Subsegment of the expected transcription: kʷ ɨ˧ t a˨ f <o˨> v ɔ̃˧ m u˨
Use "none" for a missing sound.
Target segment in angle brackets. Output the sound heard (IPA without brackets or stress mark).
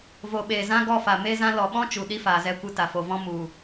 o˨